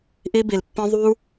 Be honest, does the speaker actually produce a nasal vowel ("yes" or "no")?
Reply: yes